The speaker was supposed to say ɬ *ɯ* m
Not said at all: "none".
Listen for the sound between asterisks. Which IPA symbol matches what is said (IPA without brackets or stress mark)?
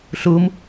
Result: u